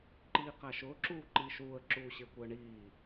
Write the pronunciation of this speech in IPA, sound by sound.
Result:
ǃiːqæʃʊː ǁuːǃiːʃuːə̯ ǁuːɕɪə̯kʷɪə̯ɳiː

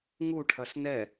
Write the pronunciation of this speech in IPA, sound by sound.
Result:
ŋuʈʰɐs nɛ

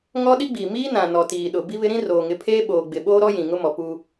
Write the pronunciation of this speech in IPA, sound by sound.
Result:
ŋɔ˦ɗi˦ɡ͡biː˨ miː˦nã˨nɔ˨ tiː˨ɗʊ˨ bi˦βɪ˦ɾĩ˦ roː˨ŋɪ˨˦pʰeː˦ɓoː˨ ɡ͡bɪ˨ɓoː˦ɾɔ˦ jĩ˨ŋʊ˦mɔ˨puː˦

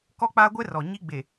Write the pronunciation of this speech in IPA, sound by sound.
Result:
kɔ˦k͡pa˦ɡʷɛ˦rɔ˨ ɲi˦ɡ͡be˨

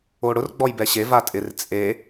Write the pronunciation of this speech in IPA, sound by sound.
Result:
oɽʊr ɡ͡bɔjbɛɕe vatʼɪr t͡sʼe

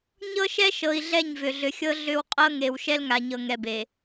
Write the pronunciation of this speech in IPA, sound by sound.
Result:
ɲɤ˦ʃɛ˦ʃɤ˨i̯ ɮɛ˦˨ɲvʏ˨ɮʏ˨xʲɤ˦ ɮʏ˦w qʼɤ˦ŋe˨w ʃɛ˦lŋa˨ɲɤ˨ ŋɛ˨be˨

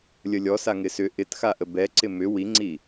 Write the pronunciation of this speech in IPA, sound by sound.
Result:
lʲəlʲɔsa ŋɪsʏ ʔɪtxaʔə bɛǀɪ mʏ wiŋ͡ǀi

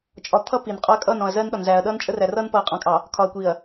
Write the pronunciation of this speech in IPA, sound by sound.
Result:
t͡ʃʼɒ˨t̪ʰʌ˦ pi˨n qʼɒ˦ɐ̯kʼʌː˦˨nɔ̃˨ɐ̯zɜː˦n ɗɒ˨nzæː˨ɐ̯ ɗʌː˦nt͡ʃʼə˦ræ˨rʌː˦n pʌː˨qʼɑ̃˨kʼɑ˨ | kʰɒ˨ɐ̯kʷi˨ɐ̯

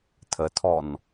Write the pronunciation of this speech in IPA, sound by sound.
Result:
tʰətʰɔn

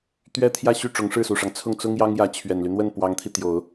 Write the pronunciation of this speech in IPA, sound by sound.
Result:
t̪ɥɛ˥t̪ʰjä˥˧ɕy˥˩ ʈ͡ʂʊ˧˥ŋʂɻ̩˥˩su˨˩ʂɑ˦ŋ t͡sʰʊ˥˩ŋt͡sʊ˥ŋjɑ˥ŋ jä˧˥t͡ɕʰɥɛ˨˩nly˦n̪wə˥˩n pwɑ˧˥ŋt̪ʰi˧ t̪jo˨˩˦ʊ̯

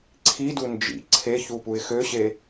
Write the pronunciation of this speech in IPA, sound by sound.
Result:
ǀʰidu nd͡ʒḭ ǀʰeçupuɪ̯ xøɕe

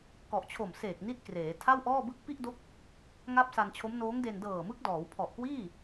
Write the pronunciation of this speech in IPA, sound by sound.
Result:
kɔ˨˩ʔt͡ɕʰo˨˩mseː˨˩k̚ni˦˥t̚ kreː˩˦ tʰa˥˩wʔɔː˥˩bɯ˥˩k̚ pi˥˩ʔdo˦˥k̚ | ŋa˥˩p̚sa˧nt͡ɕʰo˦˥m noː˦˥ŋde˧n dɤː˨˩mɯ˦˥k̚dɔː˩˦w pʰɔ˨˩ʔkwiː˥˩

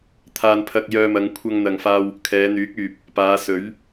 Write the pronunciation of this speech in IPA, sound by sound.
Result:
t̪ʰaː˧npʰɐ˧k̚jœː˧mɐ˨˧ŋ kʷʰɐ˧ŋn̪ɐ˨ŋfaː˧w | kʰɛː˨˧n̪yː˨˥k̚yː˨p̚ | paː˨˧sɵ˨˥ɥ

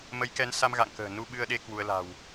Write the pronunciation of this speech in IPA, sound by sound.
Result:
mə˨˦jkɛ˨˦nsa˧m ɣa̰˧˨ŋkə̤ː˨˩ nu˧ɓɨ˧ə̯ɗe˧ kwu˧ə̯la̤˨˩w

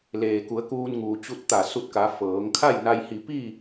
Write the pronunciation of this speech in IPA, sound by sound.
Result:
leː˩ku˩˧ə̯ kuː˧nŋuː˩ t͡ɕu˧t̚t̪a˧˩ su˧t̚ka˩˧ fɤː˩˧ŋ kʰa˥˨jna˧jhi˧˩ pi˥˨

